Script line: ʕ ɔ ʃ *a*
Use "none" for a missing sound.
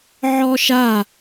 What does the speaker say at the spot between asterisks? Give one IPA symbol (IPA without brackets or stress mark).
a